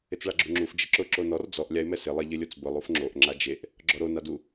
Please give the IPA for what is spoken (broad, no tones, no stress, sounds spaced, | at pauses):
ɪ t͡s ɭ a ɡ͡ǁ u ŋ͡ǁ u f d͡ʒ ɪ ǁ ʊ ǁ o n ɔ r d͡z ɔ ʔ lʲ a ɪ̯ m ɛ s ɪ lˠ e ʎ ɪ lʲ o t͡s b ʊ lˠ u f ŋ͡ǁ o ʔ ŋ͡ǁ a d͡ʒ e ʔ | ɡ͡ǁ ɔ ɾ o n a d u